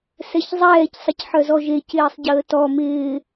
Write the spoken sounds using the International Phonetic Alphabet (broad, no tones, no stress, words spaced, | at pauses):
sɛçzˤɛːc sˤəcħœzɔʒec ɪːsˤɟəːtɔ mɪː